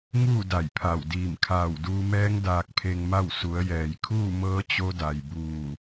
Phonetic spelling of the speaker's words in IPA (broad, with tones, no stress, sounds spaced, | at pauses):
ŋ uː˥˨ d a˧˩ j pʰ a˧˩ w d iː˧˩ m kʰ aː˧˩ w d uː˧ m ɛː˧˥ ŋ d aː˧ k̚ pʰ e˧ ŋ m a˥˨ w s u˩˧ ə̯ j ɛː˩ j kʰ uː˥˨ m ɤː˧˥ t͡ɕ o˧˥ d a˩ j b uː˧˩